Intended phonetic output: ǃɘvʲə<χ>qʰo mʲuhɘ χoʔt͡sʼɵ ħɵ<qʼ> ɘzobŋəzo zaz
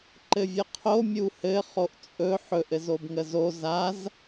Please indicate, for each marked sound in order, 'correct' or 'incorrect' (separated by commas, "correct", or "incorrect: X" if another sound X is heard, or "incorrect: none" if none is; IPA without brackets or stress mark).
incorrect: none, incorrect: ʔ